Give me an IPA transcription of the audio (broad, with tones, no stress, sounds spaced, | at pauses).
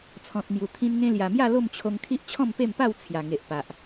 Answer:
t͡sʰ ɔ̃˨ t̚ m j u˨˩ t̪ʰ ĩ˧ n ŋ ẽ˧ l j a˨˩ m j a˥˧ l o˥˧ m t͡ɕʰ o˧ ŋ kʰ i˦ ʔ t͡ɕʰ ɔ̃˥˧ m p e˥˧ m p a˥˧ w t͡sʰ j a˨˩ ŋ e˨ ʔ p a˨ ʔ